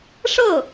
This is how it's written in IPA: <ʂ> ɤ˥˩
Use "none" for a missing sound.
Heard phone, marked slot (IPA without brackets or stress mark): ʂ